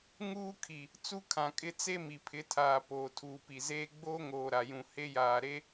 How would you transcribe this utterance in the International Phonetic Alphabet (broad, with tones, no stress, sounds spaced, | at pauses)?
ŋ uː˦ kʰ i˨ | t͡s u˦ kʰ ã˨ kʼ ɪ˦ t͡s e˦ m i˨ pʰ ɪ˨˦ tʰ aː˨ p oː˨ tʰ uː˨ p i˨ z eː˦ ɡ͡b oː˦ ŋ oː˨ ɾ a˨ j ũ˨ h e˦ j aː˨ ɾ e˦